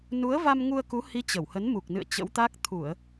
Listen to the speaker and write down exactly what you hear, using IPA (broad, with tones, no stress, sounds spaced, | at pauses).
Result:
n u˨˦ ə̯ v a˧ m ŋ u˧ ə̯ k u˨˦ h i˨˦ t͡ɕ ə˧˩ w h ə˨˦ n m u˨˩ k̚ n ɨ̰˧˨ ə̯ t͡ɕ ə̰˧˥ w t̪ a˦˥ k̚ t̪ʰ u˧˩˨ ə̯